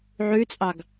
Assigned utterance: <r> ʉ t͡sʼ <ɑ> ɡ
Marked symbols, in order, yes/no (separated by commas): no, yes